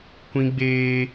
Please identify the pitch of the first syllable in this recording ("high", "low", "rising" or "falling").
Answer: high